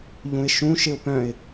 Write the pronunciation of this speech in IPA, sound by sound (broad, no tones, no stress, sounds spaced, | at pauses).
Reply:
ʎ ũ ɪ̯ ʃ ũ ʃ ɪ ʊ̯ p œ̃ ɪ̯